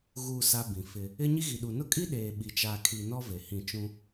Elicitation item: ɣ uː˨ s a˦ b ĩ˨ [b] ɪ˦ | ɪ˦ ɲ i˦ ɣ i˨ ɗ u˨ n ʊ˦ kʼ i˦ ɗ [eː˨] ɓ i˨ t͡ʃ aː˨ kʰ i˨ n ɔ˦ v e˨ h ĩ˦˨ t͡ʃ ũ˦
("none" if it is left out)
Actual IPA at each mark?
f, eː˨

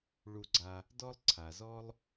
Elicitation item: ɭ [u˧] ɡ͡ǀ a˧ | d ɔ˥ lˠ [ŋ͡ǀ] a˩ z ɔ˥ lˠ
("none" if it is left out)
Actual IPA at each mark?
u˧, ǀʰ

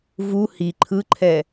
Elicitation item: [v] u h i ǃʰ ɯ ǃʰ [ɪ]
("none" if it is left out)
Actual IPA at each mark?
v, ɛ

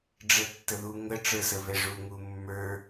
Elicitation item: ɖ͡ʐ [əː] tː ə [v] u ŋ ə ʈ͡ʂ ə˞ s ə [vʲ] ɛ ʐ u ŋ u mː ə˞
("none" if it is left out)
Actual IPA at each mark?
ə, ð, v

